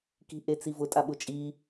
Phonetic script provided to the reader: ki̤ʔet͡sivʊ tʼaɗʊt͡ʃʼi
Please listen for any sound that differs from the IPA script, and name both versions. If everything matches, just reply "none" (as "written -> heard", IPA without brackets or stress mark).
ɗ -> ɓ